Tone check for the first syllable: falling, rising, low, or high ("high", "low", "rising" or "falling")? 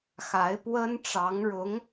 rising